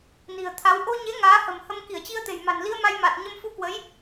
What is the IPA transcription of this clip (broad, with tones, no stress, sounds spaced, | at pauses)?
n i̤˨˩ ə̯ t̪ʰ a˨˦ w ʔ o˧ ɲ e˨˦ ŋ aː˨˦ h ə̤˨˩ m h ə˧ m k i˧˩ ə̯ t͡ɕ i˧ ə̯ t̪ e̤˨˩ j m a̤˨˩ n l i˧ ə̯ m a˧ j m a˨˩ t̚ ɲ ə˧ m f u˧ k w ə˨˦ j